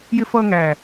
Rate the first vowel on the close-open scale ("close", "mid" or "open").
close